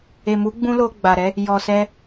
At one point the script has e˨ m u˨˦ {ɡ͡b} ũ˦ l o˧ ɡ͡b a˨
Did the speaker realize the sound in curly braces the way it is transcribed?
yes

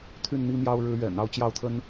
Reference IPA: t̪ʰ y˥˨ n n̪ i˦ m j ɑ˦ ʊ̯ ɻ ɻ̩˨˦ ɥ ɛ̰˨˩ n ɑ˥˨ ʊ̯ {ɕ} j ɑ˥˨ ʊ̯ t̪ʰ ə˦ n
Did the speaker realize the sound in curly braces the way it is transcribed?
no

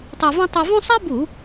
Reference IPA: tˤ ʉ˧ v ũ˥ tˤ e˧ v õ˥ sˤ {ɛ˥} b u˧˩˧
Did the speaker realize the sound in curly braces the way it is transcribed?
no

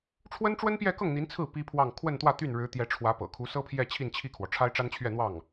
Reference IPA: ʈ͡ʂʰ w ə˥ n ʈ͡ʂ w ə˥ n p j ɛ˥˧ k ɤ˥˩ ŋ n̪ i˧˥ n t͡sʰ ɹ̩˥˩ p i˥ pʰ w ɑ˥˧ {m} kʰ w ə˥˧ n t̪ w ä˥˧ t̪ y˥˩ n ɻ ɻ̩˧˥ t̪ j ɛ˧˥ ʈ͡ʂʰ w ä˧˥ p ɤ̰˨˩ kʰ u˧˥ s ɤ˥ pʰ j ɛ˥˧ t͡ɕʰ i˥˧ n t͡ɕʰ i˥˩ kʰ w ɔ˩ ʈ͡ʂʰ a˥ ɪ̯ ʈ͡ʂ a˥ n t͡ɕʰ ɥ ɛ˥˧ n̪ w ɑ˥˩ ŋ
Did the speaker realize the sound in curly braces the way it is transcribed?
no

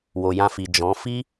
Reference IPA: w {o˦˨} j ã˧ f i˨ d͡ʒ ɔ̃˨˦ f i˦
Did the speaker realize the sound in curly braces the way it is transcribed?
no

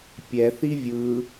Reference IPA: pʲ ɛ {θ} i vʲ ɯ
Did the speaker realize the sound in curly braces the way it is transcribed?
yes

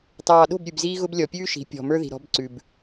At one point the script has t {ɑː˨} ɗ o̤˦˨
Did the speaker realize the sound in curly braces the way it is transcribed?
yes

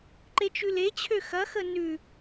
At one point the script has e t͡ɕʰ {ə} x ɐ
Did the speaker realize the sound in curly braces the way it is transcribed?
no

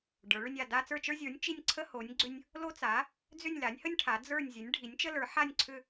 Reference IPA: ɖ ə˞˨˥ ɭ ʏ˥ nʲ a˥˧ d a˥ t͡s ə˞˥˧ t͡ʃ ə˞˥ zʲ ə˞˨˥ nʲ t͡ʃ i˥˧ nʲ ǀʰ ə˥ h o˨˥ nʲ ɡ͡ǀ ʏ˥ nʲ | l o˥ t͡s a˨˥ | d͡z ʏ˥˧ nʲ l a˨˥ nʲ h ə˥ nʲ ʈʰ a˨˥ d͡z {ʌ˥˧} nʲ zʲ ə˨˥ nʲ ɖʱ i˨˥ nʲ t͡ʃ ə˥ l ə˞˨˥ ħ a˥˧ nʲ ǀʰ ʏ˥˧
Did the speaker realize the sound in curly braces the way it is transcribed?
no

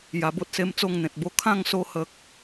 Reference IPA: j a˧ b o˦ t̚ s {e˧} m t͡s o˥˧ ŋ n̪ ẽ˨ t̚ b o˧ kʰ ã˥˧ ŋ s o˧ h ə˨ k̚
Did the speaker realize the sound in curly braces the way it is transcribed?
no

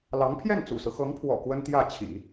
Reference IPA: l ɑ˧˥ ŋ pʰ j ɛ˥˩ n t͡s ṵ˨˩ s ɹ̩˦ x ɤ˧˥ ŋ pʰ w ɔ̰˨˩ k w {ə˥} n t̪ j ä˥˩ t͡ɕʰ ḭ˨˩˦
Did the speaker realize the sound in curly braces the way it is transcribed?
yes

